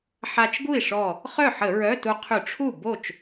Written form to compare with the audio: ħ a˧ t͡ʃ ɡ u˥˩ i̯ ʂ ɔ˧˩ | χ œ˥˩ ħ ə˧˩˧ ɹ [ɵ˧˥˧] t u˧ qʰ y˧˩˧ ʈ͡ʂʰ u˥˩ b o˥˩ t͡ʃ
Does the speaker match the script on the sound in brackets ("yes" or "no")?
no